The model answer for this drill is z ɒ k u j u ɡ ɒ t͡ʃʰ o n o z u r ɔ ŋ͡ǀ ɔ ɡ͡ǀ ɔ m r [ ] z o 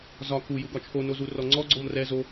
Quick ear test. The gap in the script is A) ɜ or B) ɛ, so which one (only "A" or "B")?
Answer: B